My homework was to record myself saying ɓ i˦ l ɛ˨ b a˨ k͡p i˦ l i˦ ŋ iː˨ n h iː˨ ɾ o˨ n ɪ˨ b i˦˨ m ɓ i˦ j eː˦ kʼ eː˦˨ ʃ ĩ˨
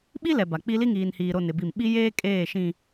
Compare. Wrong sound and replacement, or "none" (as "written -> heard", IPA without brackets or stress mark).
none